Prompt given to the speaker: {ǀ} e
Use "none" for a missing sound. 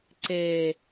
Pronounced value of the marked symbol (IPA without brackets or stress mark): ǀ